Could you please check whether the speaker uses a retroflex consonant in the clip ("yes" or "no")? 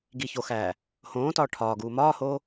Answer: yes